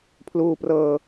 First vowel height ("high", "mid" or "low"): high